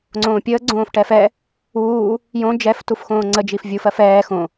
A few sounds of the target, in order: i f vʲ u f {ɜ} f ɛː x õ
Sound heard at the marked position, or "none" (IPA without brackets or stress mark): ɜ